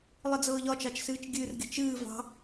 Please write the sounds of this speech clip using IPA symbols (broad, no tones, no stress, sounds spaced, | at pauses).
lˠ ɨ d͡z ɤː ʎ ɒ t͡ʃ ɑ t͡ʃ s ɨː t͡ʃ ɡʲ ɨ r ɡʲ ə̤ t͡ʃ ɨː v ɑ̤